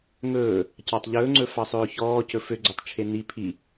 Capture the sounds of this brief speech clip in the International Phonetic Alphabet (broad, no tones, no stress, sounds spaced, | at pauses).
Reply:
ŋ ɵː | c ɑ tˤ ʎ ɵː ŋ͡ǀ ɵ f ɑ sˤ ɵː ç ɔː c ɵ f ø ɡ͡ǀ ø tˤ t͡ʃʰ e n i pʰ i